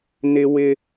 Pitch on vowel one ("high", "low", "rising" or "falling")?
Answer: high